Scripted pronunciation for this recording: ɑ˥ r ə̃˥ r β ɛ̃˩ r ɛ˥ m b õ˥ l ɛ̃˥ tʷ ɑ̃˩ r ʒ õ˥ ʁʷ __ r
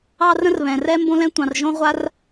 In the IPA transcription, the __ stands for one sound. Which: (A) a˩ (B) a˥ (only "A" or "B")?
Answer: B